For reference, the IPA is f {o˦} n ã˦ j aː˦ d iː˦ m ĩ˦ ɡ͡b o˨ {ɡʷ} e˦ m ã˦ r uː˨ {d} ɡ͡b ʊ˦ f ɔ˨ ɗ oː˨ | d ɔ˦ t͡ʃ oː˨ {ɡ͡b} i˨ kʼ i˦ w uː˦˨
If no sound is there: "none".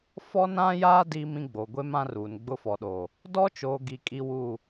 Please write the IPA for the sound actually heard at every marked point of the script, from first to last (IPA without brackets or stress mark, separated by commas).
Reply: ɔ˦, ɡʷ, n, ɡ